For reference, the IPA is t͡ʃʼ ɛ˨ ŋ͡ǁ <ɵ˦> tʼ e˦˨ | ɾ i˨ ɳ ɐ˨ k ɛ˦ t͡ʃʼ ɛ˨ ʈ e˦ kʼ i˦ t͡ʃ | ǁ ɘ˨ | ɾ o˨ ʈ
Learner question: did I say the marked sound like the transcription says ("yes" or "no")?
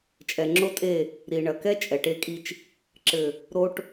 no